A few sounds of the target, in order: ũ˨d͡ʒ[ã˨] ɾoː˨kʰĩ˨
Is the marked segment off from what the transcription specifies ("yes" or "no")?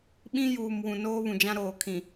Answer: yes